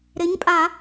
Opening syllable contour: rising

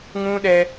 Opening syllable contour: high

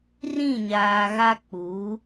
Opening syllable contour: falling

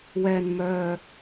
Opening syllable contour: low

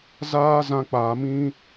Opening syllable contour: high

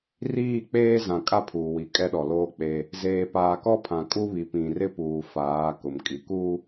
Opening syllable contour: falling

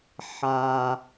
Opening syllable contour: low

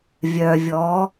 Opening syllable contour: low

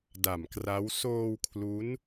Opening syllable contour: low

